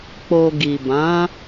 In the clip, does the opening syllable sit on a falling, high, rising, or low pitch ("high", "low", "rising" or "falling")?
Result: low